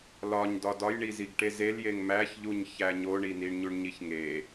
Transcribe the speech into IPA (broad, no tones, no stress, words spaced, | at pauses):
lɒɲ dɒdɒjɳiziɡ ʈezeljeŋ mæçʎuɲ çæɲoɳi niɳɲuɳɲiçŋe